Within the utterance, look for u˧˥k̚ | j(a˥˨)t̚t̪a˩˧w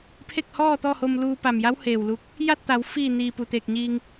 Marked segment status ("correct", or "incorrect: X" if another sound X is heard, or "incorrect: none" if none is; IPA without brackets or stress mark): correct